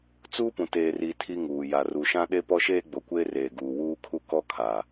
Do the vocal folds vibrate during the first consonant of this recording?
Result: no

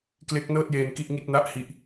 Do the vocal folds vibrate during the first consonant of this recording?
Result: no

